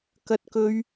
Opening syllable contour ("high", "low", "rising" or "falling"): high